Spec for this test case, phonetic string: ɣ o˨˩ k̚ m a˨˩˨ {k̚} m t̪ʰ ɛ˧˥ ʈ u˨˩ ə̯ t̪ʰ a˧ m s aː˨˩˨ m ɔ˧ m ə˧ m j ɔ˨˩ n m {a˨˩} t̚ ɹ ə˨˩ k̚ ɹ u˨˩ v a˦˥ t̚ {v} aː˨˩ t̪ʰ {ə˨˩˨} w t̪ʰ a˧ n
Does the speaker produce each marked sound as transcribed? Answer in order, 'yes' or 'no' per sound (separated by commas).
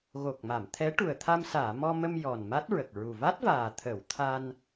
no, no, yes, yes